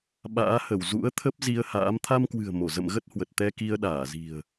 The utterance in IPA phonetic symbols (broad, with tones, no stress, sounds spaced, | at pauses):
ɓ a̰ː˧˥ h ə˧˩ w z ṵ˧˥ ə̯ t̪ʰ ə˦˥ p̚ z i˧ ə̯ h a̰ː˧˥ m t̪ʰ a˧ m k w ɨ̤˨˩ ə̯ m o˧˩ z ə̰˧˨ m ɣ ə˦˥ t̚ h w ə˨˩ t̚ t̪ ɛ˧ k i˧ ə̯ ɗ aː˧˩ z i̤˨˩ ə̯